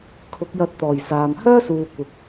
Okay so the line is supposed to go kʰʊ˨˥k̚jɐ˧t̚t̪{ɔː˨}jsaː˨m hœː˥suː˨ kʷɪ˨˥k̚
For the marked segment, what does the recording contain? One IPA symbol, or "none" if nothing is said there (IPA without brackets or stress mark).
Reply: ɔː˨˩